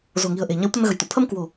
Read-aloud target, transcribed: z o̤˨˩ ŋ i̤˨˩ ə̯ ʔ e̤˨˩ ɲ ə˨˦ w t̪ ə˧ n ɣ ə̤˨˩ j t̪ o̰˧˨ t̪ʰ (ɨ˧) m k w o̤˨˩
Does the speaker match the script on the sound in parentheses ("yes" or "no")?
no